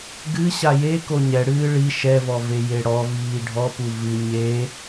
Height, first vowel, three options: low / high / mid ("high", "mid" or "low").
high